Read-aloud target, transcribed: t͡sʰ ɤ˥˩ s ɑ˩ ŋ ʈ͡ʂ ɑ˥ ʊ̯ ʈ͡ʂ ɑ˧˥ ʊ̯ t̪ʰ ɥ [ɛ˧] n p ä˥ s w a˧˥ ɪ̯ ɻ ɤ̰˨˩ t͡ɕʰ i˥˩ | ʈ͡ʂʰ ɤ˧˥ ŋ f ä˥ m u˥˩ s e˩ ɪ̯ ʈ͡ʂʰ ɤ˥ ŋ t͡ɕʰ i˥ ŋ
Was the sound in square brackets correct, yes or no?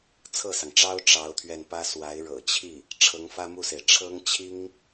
yes